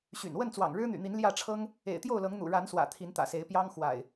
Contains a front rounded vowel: yes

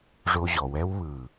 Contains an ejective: no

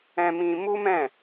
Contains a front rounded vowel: no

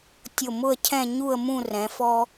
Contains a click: no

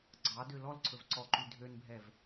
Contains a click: yes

